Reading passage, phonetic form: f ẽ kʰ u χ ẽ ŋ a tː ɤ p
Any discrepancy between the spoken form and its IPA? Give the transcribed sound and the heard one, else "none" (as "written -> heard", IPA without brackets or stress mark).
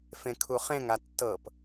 none